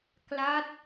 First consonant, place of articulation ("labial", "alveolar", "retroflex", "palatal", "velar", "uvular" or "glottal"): velar